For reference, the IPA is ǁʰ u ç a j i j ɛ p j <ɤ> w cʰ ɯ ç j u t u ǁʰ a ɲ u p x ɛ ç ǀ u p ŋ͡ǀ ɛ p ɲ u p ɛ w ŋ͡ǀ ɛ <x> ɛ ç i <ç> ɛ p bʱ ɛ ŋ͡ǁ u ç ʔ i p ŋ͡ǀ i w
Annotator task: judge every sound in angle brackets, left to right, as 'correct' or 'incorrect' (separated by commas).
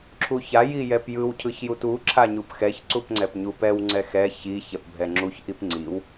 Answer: incorrect, correct, correct